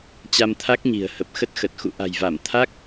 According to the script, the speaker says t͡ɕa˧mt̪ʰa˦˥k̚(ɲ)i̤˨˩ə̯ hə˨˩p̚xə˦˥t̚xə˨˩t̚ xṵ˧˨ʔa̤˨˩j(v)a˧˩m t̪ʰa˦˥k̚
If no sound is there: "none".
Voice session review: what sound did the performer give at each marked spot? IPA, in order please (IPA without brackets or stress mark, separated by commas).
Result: ɲ, v